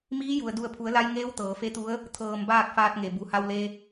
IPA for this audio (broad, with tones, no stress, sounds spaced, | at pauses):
m iː˧˥ j u˩ ə̯ d u˧˩ ə̯ pʰ u˩˧ ə̯ l a˧ j ŋ eː˧˥ w t̪ ɤː˩˧ f e˧˥ t̪ u˧˥ ə̯ | t̪ʰ ɤː˧˩ m b aː˥˨ k̚ f aː˧ t̚ ŋ e˩ b u˩ h a˧ w l e˧